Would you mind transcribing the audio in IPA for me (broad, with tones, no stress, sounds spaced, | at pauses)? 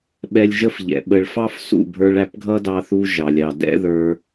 ɓ ɛ˧ lʲ ʒ ə˦ f ʎ ɛ̰˨ ɓ ə˨ ɭ f ɑ˦ f s ṵ˦˨ bʱ ə˞˧ ɭ æ˧ p ɡʱ ʌ˦ d ɑ˧ θ u˧ ʒ ɑ˨ lʲ ɑ˨ d ɛ̰˦ ð ə˞˧